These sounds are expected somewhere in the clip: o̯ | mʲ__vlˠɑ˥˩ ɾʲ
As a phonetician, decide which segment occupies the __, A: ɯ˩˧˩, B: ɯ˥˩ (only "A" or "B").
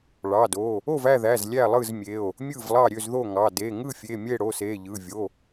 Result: B